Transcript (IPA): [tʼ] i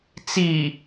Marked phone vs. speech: incorrect: t͡s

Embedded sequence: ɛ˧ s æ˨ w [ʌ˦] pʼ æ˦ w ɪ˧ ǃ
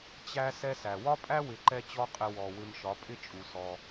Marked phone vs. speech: incorrect: ɒ˦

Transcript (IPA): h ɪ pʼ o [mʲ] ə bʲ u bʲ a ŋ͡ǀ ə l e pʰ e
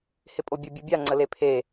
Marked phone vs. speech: incorrect: bʲ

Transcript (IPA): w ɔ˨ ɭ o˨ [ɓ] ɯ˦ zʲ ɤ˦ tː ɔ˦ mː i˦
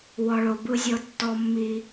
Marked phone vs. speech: incorrect: b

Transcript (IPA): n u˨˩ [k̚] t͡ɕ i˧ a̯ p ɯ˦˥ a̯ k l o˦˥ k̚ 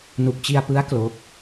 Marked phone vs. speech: correct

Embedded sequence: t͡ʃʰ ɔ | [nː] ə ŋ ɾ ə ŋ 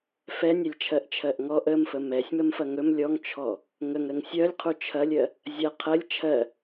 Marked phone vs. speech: incorrect: ŋ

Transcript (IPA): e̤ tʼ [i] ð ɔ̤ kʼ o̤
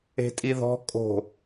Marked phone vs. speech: correct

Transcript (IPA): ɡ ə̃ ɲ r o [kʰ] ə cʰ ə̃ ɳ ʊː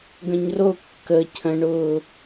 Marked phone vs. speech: incorrect: kː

